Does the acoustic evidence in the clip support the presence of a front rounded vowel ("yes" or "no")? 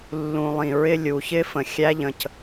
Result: no